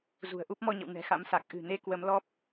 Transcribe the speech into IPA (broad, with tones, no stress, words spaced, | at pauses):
zṳ˨˩ə̯ʔu˦˥p̚mɔ˧ɲə̰˧˨w nɛ̤˨˩xa̰˧˥msa˨˩k̚ ʔɨ̤˨˩ne˨˦ kwə˨˦mlɔ˦˥p̚